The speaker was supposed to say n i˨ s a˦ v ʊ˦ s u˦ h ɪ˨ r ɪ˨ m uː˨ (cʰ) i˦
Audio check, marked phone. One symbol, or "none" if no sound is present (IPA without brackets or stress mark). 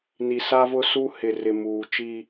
t͡ʃ